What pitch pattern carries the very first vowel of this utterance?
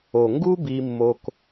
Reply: low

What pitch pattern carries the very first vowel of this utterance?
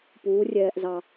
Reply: rising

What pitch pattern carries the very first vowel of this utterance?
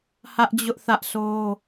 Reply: high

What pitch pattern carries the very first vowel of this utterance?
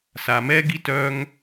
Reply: low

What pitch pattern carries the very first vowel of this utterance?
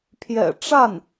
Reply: low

